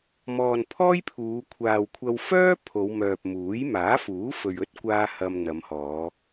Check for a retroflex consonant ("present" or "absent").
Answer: absent